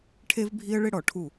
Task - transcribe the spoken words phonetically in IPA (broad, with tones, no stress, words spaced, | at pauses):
ʈʰe˦vbʱi˦ə̯ɭɪ˦ɽɔ˨ ʈʰu˦˨